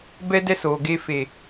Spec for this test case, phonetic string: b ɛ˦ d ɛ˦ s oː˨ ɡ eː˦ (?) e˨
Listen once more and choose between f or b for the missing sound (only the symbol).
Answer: f